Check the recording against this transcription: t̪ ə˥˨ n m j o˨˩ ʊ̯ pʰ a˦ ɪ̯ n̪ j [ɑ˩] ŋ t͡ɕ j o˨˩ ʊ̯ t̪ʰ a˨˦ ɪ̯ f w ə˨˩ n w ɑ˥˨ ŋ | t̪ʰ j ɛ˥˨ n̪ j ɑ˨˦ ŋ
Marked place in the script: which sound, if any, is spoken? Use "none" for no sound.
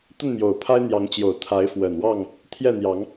ɑ˨˦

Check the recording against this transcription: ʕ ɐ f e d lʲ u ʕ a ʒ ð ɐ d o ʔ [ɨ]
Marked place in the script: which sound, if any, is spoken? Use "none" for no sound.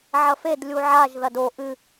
ɨ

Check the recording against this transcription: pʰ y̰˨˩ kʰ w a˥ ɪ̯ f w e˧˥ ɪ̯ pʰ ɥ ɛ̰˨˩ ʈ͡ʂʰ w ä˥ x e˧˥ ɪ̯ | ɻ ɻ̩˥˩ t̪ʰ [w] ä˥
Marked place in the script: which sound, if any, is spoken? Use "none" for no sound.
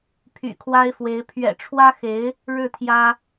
j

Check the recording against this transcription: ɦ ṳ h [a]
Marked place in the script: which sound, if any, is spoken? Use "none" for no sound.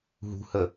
ə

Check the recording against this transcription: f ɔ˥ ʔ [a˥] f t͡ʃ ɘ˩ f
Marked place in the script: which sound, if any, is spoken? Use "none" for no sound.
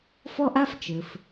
a˥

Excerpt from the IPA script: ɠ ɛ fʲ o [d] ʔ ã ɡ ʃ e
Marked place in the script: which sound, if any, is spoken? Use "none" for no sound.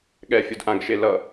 d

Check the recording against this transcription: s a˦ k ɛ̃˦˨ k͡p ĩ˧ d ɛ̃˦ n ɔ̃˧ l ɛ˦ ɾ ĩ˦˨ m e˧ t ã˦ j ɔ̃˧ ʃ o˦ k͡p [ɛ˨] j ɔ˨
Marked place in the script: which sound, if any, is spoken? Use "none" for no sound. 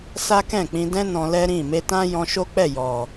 ɛ˦˨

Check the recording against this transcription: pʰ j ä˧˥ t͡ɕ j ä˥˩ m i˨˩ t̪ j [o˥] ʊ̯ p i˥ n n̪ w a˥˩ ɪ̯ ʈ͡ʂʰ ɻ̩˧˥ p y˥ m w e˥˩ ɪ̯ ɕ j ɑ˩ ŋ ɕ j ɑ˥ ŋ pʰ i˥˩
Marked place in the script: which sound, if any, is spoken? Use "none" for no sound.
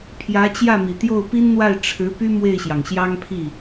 o˥˩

